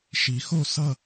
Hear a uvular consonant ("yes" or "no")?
no